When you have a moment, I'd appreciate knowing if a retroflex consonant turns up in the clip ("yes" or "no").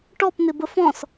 yes